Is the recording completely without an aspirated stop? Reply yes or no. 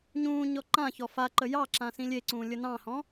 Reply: yes